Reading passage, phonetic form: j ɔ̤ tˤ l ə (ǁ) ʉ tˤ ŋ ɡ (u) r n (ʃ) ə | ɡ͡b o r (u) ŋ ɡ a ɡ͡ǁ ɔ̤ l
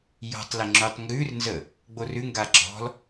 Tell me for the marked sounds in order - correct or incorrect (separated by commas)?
incorrect, incorrect, incorrect, incorrect